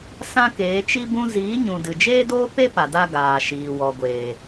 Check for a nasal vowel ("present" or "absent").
present